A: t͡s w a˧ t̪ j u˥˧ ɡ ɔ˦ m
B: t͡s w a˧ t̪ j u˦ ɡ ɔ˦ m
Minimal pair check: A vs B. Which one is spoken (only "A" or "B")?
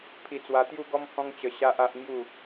A